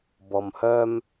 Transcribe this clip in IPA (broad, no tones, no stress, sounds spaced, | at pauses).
b ɔ m h œ m